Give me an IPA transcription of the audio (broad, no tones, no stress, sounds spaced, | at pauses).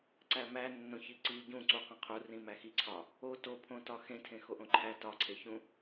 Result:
ǀ æ m æ nː õ ç i ǀ i ɟ ũ ǀ u q ẽ qʰ u r ĩ m æ x i ǀʰ ɒ | o t o pʰ õ t ɒ x ẽ tʰ ẽ x o ʔ õ ǃʰ æ t ɒ ǀʰ e ç ũ